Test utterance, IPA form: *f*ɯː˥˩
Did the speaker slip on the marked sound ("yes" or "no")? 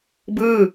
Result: yes